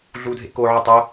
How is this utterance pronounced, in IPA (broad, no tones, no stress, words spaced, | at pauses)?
ɮudʱḛ koʕɯ tˤo